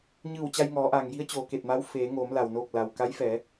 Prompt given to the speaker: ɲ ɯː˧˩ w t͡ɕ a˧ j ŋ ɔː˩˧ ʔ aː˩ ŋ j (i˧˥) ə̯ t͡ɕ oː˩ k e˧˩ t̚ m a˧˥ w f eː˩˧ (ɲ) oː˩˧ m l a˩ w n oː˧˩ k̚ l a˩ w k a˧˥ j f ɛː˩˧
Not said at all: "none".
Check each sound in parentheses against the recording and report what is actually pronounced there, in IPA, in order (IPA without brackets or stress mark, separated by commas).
i˧˥, ŋ